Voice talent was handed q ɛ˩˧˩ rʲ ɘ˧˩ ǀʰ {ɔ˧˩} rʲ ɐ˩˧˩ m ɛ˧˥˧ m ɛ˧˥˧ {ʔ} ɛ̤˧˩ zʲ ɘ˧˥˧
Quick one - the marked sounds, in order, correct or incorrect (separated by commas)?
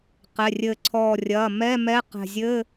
correct, incorrect